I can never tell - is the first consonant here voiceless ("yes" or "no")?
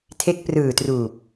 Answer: yes